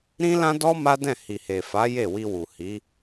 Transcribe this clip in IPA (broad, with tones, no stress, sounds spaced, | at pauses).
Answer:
ɾ ĩ˦ l ã˦ d ɔ˦ m a˦ d ɛ̃˦˨ h i˨ h e˨ f a˨˦ j e˦˨ w i˧ w u˨ h i˨˦